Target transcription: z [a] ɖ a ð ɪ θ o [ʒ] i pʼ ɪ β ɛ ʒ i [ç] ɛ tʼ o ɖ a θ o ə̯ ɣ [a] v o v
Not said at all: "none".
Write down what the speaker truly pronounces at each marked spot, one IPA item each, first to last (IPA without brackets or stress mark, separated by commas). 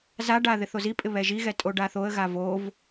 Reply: a, z, ɣ, a